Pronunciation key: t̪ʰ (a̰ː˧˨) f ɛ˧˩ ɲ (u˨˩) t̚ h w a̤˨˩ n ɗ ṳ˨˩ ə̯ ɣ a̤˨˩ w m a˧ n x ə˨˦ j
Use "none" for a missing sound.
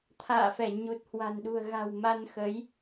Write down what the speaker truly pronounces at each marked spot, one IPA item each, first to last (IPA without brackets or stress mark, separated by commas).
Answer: a̰ː˧˨, u˨˩